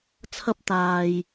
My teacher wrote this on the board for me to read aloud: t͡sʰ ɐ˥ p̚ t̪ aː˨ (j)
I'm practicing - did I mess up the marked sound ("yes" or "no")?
no